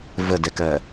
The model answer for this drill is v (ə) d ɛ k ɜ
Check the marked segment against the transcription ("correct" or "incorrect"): correct